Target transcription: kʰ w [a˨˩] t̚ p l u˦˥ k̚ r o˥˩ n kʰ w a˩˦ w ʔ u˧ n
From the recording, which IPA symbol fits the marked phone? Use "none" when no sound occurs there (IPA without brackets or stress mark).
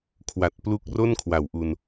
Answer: a˨˩